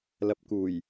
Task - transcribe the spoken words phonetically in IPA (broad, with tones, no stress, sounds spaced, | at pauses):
l ɐ˨ p̚ k uː˨˩ j